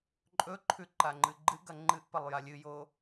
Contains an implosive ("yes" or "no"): no